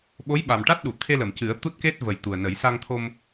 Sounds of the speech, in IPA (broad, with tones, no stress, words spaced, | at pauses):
ɓo˧˥jɓa˨˩mʈa˦˥t̚ɗu˨˩˨ t̪ʰe˧lə˨˩˨m cɨ˨˩˦ə̯t̪u˦˥t̚ke˦˥t̚ və˨˩jt̪u˨˩ə̯nə˨˩˦j sa˧ŋt̪ʰo˧m